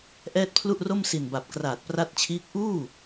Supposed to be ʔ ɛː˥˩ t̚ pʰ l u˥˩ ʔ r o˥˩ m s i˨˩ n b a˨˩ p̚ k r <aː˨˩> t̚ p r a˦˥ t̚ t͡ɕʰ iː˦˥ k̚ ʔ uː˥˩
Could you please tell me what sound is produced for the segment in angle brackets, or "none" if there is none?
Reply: aː˨˩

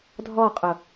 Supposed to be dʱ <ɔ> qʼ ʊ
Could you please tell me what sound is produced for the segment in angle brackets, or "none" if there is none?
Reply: ɔ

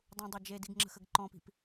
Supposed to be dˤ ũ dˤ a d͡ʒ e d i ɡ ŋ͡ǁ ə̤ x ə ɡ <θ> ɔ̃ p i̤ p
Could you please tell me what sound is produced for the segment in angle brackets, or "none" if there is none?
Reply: ǃ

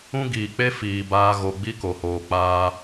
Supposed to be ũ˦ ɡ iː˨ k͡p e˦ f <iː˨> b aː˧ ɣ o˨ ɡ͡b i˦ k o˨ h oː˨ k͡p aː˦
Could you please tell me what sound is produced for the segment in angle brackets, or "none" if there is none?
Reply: iː˨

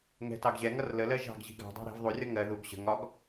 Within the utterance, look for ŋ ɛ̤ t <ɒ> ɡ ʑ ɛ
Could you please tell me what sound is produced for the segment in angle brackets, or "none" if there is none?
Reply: ɑ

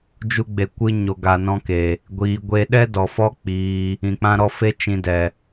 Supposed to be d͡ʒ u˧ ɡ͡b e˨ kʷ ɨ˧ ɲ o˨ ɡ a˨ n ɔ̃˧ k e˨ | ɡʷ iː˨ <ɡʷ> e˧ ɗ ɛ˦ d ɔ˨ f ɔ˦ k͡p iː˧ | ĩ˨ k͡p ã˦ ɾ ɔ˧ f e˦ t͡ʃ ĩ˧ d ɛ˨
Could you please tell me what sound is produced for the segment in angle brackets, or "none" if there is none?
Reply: ɡʷ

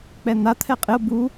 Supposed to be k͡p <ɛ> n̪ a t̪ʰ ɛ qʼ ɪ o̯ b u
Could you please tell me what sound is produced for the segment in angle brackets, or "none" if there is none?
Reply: ɛ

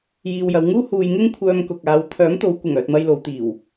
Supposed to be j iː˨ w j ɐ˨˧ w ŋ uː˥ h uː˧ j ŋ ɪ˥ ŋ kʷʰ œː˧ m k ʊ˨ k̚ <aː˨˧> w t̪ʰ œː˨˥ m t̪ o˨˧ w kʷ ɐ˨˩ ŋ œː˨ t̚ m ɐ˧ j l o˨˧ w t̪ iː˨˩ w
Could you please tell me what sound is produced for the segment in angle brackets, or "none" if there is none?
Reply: aː˨˧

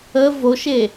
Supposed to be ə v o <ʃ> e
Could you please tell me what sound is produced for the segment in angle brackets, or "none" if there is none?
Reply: ʃ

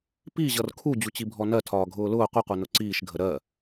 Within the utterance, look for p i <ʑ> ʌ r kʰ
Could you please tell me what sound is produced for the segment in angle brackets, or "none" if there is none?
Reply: ʑ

